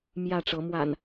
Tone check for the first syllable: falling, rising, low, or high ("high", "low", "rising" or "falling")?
falling